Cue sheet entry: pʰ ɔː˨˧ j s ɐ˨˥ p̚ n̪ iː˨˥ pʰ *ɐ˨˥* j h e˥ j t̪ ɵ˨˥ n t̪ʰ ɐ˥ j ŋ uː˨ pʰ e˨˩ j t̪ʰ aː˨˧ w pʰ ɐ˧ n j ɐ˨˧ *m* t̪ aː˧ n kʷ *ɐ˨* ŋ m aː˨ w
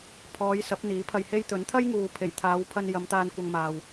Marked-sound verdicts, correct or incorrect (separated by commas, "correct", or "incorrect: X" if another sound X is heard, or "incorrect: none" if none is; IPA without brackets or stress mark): incorrect: ɐ˧, correct, incorrect: ɐ˧